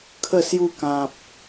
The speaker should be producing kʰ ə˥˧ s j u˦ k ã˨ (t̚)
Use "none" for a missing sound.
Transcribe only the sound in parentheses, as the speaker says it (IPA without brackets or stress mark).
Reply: p̚